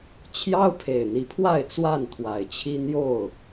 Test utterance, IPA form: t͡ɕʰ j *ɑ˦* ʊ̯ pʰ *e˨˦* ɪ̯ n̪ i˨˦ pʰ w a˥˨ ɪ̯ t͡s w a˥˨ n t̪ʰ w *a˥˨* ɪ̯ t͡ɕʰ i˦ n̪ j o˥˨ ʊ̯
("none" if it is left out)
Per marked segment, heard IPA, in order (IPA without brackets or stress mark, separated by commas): ɑ˦, e˨˩, a˨˩